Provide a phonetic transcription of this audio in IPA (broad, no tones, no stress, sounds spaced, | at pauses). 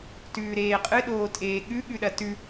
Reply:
t ʉː ɾ eː qʼ ɨ ɗ oː tʼ eː ɠ ʉ ɠ ʉ ɗ ɐ t ʉ